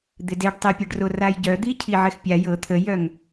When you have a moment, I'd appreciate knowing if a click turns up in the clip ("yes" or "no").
no